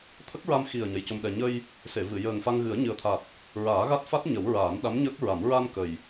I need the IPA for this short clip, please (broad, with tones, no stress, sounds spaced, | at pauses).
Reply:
t̪ʰ ə˦˥ k̚ ɹ a˧ m x i˨˩ ə̯ ɲ ə˧˥ j c o˧ m ɗ ɛ˧ ɲ ə˧ j | s e˨˩˨ v ɨ˨˩˨ j əː˨˩ ŋ f a˧ ŋ ɣ ɨ˨˩˦ ə̯ ɲ ɨ˨˩ ə̯ t̪ʰ a˨˩ t̚ | ɹ aː˨˩˦ ɣ a˦˥ t̚ f a˦˥ t̚ ɲ ə˨˩˦ w ɹ aː˨˩˦ n ɗ a˧˥ m ɲ əː˦˥ k̚ ɹ a˨˩˦ m ɹ a˧ n k ə˨˩ j